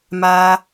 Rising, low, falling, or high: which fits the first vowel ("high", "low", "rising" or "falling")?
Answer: high